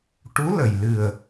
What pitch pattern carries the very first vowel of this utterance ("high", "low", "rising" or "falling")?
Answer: rising